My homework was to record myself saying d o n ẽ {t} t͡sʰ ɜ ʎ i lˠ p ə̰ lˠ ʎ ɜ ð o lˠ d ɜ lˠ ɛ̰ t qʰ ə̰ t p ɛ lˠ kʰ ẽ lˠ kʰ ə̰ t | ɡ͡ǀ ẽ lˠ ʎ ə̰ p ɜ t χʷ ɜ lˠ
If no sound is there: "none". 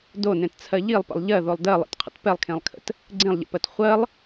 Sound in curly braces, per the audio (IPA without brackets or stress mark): t